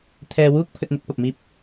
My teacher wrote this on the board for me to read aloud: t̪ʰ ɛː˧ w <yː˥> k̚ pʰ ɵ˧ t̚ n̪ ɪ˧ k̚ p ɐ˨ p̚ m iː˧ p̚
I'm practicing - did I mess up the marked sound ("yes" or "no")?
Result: yes